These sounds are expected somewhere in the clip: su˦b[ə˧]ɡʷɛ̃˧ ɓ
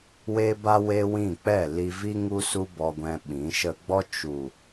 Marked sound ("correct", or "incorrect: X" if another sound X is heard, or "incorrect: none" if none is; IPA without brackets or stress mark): incorrect: ɔ˧